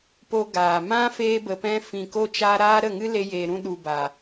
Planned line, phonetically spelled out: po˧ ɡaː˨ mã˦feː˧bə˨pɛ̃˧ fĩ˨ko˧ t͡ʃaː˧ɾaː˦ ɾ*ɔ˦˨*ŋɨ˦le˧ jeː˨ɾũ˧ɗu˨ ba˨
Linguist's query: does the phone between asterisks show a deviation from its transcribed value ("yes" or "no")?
yes